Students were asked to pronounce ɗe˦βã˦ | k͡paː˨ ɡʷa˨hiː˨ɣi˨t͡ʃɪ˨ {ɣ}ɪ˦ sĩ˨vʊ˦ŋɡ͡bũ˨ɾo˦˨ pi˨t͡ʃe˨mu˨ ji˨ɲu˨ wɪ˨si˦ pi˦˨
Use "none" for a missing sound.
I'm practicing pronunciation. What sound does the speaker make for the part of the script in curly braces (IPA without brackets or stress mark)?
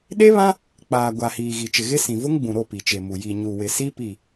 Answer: ɣ